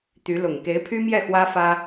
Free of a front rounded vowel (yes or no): no